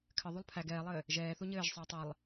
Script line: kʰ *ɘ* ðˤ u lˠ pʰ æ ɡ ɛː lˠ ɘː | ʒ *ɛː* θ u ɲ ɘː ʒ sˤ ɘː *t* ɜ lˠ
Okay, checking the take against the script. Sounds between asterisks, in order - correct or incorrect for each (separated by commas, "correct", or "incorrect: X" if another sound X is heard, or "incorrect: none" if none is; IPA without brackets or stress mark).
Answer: correct, correct, incorrect: tˤ